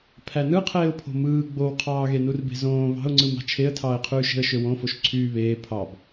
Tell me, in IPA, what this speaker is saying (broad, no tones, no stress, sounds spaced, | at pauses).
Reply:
pʰ æ n ɯ qʰ eː ʊ̯ pʰ o̤ m ɯː ɡ͡b o w qʰ ɑː ɣ e n u r b e̤ z õː β ɑ̤ ʊ̯ ŋ͡ǀ ɯ m ɑ̤ t͡ʃʰ e ə̯ tʰ ɑː ɪ̯ qʰ yː ʃ e̤ ə̯ ʃ ø w õ f o ʃ ǀʰ yː β eː pʰ ɑ b